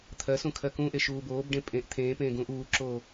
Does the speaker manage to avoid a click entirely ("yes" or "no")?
no